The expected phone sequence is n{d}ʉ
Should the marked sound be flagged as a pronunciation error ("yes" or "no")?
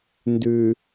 no